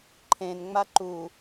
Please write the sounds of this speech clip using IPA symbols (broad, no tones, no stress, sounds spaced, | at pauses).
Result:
ǃʰ ẽ n ŋ͡m a ǃ u